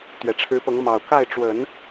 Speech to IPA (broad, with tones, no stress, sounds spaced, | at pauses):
t̪ ɥ ɛ˨˩ ʈ͡ʂʰ ɻ̩˧˥ p ɤ˧˥ ŋ m ɑ˨˩ ʊ̯ k a˥˩ ɪ̯ ʈ͡ʂ w ə˨˩˦ n